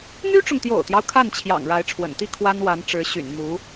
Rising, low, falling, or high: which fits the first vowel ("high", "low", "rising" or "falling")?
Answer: high